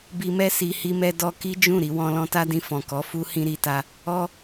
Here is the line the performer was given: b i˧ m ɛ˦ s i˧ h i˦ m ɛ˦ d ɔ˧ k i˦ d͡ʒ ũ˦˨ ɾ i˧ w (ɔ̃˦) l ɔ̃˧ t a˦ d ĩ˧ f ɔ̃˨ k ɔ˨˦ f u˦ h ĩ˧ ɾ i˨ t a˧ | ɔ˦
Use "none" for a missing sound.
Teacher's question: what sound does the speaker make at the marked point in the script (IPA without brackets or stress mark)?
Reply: ɔ̃˧